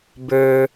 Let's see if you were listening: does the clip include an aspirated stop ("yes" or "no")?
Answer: no